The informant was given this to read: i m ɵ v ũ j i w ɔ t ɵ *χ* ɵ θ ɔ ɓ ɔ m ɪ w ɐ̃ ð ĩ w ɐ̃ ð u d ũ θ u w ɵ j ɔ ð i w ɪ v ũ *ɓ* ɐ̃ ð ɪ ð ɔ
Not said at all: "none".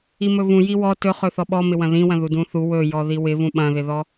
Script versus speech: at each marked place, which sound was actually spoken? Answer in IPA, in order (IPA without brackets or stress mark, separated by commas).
χ, ɓ